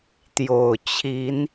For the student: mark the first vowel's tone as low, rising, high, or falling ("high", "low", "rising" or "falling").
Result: low